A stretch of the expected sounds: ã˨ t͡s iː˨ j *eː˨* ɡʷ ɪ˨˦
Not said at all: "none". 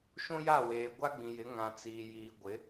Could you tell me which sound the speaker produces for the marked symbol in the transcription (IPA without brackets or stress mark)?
iː˨